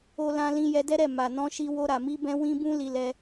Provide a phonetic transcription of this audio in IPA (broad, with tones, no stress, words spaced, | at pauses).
o˧lã˧lĩ˧ jɛ˧dɛ˦ɾɛ˦˨ ma˨nɔ̃˧ʃi˧ wo˧ɾa˨mi˧bɛ̃˧ wĩ˦bũ˦ li˧lɛ˧